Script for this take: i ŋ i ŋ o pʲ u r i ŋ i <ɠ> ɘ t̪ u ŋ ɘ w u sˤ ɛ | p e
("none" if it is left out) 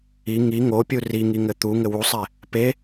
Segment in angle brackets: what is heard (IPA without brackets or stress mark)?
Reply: ŋ